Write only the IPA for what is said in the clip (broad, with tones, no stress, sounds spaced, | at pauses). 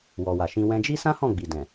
w ɔ˨ w a˨ ʃ ĩ˧ w ɛ̃˧ d͡ʒ i˦ s ã˦ h ɔ̃˦˨ ɡ͡b i˨ d ɛ̃˨